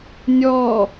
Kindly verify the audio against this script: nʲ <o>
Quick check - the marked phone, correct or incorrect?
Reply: incorrect